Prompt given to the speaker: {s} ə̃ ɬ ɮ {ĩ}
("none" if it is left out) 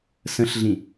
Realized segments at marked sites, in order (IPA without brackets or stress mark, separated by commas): s, ĩ